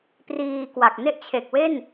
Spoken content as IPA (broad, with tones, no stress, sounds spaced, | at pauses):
p r iː˧ k w a˨˩ k̚ n e˥˩ ʔ t͡ɕʰ e˨˩ k̚ w e˥˩ n